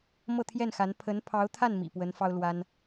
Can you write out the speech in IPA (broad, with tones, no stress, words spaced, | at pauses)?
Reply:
mɤ˥˧ t̪ʰjɛ˥˩nxa˧˥n pʰə˧˥npʰɑ˧˥ʊ̯t̪ʰa˥˩n mḭ˨˩pwə˧˥n fɑ˥ʊ̯lwa˥n